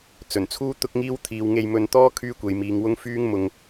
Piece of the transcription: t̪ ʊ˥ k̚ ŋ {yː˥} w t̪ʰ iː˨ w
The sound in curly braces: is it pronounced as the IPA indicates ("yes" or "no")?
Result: no